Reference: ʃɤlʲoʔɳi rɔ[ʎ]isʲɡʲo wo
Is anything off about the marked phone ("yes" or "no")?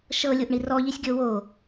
no